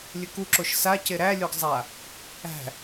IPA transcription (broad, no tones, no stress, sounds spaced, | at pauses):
lʲ ɘ k u ǁ o ʃ s a c e ɾ æ lʲ o ɡ zˤ a | æ̤